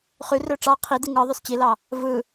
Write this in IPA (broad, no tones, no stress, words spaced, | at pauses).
χyrø ʈ͡ʂɑ qʰidi ŋɯ ðˤøst͡ɕilɑ | vɯ